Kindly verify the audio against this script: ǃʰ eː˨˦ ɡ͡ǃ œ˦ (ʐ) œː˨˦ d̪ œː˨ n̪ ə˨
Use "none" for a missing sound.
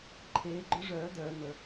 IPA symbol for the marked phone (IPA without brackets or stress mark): ʐ